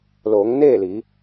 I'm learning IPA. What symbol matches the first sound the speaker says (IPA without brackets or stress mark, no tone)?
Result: l